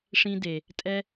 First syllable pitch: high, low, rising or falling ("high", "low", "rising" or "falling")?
high